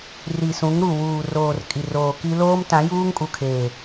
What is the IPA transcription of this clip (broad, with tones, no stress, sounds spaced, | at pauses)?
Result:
r i˨ s ũ˨˦ ŋ ɾ u˨ w uː˨ r oː˨ r kʼ i˨ r oː˨ k i˦ l oː˦ m t ã˨˦ j uː˦ ŋ kʼ u˨ kʰ eː˨